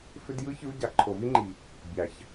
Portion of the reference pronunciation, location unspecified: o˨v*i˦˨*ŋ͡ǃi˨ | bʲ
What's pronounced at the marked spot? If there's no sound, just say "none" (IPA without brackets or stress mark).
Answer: i˦